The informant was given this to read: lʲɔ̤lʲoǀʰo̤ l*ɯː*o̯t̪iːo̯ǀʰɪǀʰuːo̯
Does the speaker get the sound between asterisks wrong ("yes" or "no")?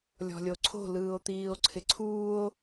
no